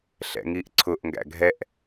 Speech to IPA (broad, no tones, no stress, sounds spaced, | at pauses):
ɬ ɛ̰ ŋ i ʔ ǀʰ ʊ ʔ ŋ ɡ æ̰ ɡʱ ɛ ʔ